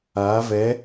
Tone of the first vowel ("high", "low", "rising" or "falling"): rising